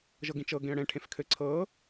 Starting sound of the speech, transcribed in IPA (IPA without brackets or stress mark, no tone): ʒ